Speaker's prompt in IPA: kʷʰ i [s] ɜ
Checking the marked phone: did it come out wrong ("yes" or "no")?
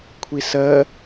no